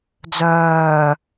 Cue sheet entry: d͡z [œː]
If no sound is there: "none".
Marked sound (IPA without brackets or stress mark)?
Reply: œː